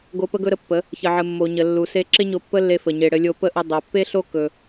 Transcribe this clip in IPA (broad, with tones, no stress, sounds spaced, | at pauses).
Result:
ɡ o˧ p ə˦ ɡ ɵ˦ ɾ ə˧ pː ə˨˦ | ç ə˨ ʕ ɘ˨ mː o˨ ɲ ə˨ lː u˨ s e˧ ǁ ɪ˦ ɲ o˧ pː ə˦ lː e˧ f ə˨ ɲ e˧ ɽ ɘ˦ lʲ o˦ p ə˦ ʔ ə˧ dˤ o˨ pː e˦ ɬ o˦ k ɵ˧